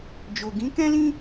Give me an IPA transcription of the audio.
d͡ʒ o˨ ɡ ĩ˨˦ k ɛ̃˦ l ĩ˦

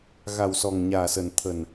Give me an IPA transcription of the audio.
ɣ a˨˩ w s ɔ˨˩ ŋ ɲ aː˨˩ s ə˨˩ n t̪ʰ ə˨˩ n

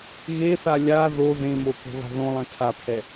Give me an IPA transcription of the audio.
ɣ e θ a lʲ a ð o ð ẽ m o k o̤ β a̤ ð õ lˠ ɛ̃ tʰ a pʰ ɛ

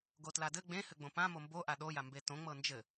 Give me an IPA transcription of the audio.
ɡ o t l a d ɘ ɡ͡b ẽ h ɘ ɡ͡b õ p ã m o m b o ʔ a ɗ o j a m b e t õ ŋ͡m ɤ n d͡ʒ ɘ

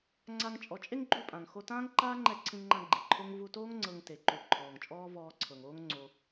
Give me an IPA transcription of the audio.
ŋ͡ǀ a˧ ŋ t͡ʃʼ ɔ˨˦ t͡ʃʼ e˦ ŋ ɡ͡ǃ u˦˨ pʼ ã˨ ŋ x o˧ t ãː˦ ŋ ǃ aː˦ ŋ͡ǃ ɛ˦˨ ǀʰ ĩ˧ ŋ ŋ͡ǃ ã˧ ɡ͡ǃ i˨ ǃʰ o˦ ŋ v u˧ t oː˦ ŋ ŋ͡ǀ ɤ˧ ŋ t e˨ ǃ u˨ ǃʰ ɔː˨ ŋ t͡ʃʼ ɔː˦ v ɔː˧ ǀʰ ɤ˨ ŋ oː˦ ŋ ŋ͡ǀ o˧

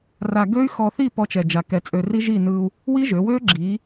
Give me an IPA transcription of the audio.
r a˧ ɡ ø˦˥ y̯ x ɔ˧ θ i˥˨ p ɔ˧ t͡ʃ ɛ˨˩ d͡ʒ a˨˩ k ɛ˩˧ t͡sʼ ø˨˩ r i˦˥ ʒ i˥˨ n ɯ˧ u̯ | w i˦˥ ʒ ø˩˧ w ø˦˥ ɡ͡ǁ i˩˧

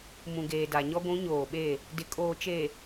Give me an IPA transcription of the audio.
m ũ˨ ɡ eː˨ d a˨ ɲ ɔ˦ ɡʷ ũ˨˦ ɲ oː˨ ɓ e˦˨ | d ɪ˨ kʼ oː˨ t͡ʃ e˨

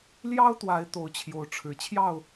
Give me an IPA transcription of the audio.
l j ɑ˦ ʊ̯ t̪ w a˨˦ ɪ̯ t̪ o˨˦ ʊ̯ t͡ɕʰ j o˨˦ ʊ̯ ʈ͡ʂʰ ɻ̩˨˩ t͡ɕʰ j ɑ˥˨ ʊ̯

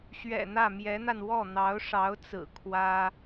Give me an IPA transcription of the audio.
ɕ ɥ ɛ̰˨˩ n̪ ä˥˩ m j ɛ˧˥ n̪ a˧ n w ɔ˥˩ n̪ ɑ˧˥ ʊ̯ ʂ ɑ˧˥ ʊ̯ t͡s ɹ̩˨˩ kʰ w ä˥

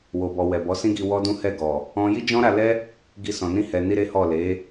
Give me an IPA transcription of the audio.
w o˨ b ɔ˨ w ɛ˨ b ɔ˨˦ s ĩ˦ ɡ i˧ w ɔ˦ d ũ˦ h ɛ˦˨ ɡ ɔ˨ | ɔ̃˦ j i˦ d͡ʒ ɔ̃˦ ɾ a˧ l ɛ˦ | ɡ i˧ s ɔ̃˨ n ĩ˧ h ɛ˨ n i˧ ɾ e˦ h ɔ˦˨ l e˨˦

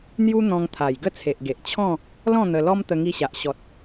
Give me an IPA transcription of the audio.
n̪ j u˦ n̪ ɔ̃˧ ŋ t̪ʰ a˨˩ j ɡ ə˥˧ t͡sʰ e˨ ʔ ɡ e˨ ʔ t͡ɕʰ ɔ̃˥˧ | l ɔ̃˥˧ n̪ ə˧ l ɔ˦ m t̪ ə˧ ŋ i˧ ɕ a˨ ʔ ɕ ɔ˨ t̚

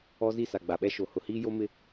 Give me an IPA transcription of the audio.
ɔ˦ z i˦˨ s a˨ ɡ͡b a˨ ɓ ɛ˦ ʃ o˨ h ʊ˨ h iː˦ j o˦ m ɪ˦

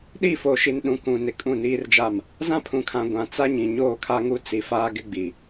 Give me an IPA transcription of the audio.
ɗ i˦˨ f o˨ ʃ i˨ n ɗ ũ˨ k ũ˨ n ɪ˨ kʼ ũ˦˨ n iː˦ r d͡ʒ a˦˨ m | z ã˦ pʰ ũ˨ kʰ ã˨ ɡʷ ã˨ t͡s a˦ ɲ ĩ˨ ɲ oː˦˨ kʰ a˦ ŋ u˦ t͡s i˨ f aː˦ ɡ ɪ˦ ɡ͡b i˨

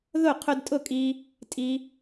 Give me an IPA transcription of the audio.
ð ʊ˥˩ qʰ ʊ˧ d tʼ ʊ˥˩ kʼ i˧ | tʼ i˧

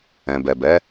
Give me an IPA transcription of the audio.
ɛ̃˨ b ɛ˨ b ɛ˨˦

